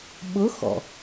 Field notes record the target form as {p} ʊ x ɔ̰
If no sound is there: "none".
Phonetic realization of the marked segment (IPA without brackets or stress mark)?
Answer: ɓ